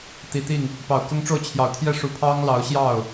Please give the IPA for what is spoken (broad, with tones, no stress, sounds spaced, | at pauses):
t̪ i˨˩ t̪ i˥˩ ŋ | p ɑ˨˩ ʊ̯ k ʊ˥ ŋ ʈ͡ʂ o˥˩ ʊ̯ t͡ɕʰ j ɑ˨˩ ʊ̯ t̪ʰ j ɛ˥˩ ʂ u˧˥ pʰ ɑ˥ ŋ l ɑ˧˥ ʊ̯ ɕ j ɑ˥˩ ʊ̯